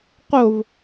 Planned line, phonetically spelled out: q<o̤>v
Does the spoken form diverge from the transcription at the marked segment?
yes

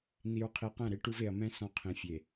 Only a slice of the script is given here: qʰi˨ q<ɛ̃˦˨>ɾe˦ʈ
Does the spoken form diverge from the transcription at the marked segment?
no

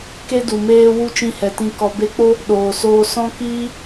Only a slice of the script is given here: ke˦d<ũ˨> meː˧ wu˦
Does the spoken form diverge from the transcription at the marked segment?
yes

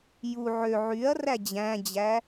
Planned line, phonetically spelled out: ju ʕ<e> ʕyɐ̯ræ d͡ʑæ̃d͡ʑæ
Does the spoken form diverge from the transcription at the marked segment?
yes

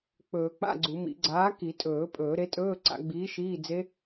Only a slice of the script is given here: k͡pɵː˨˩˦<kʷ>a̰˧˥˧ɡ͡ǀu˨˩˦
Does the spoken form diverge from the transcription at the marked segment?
yes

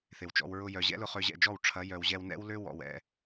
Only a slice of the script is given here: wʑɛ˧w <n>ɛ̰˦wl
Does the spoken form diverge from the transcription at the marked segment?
no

